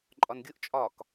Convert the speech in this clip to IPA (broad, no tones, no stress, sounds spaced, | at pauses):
ǃʼ ɒ n ɡʲ ʊ ʔ t͡ʃʼ ɒ k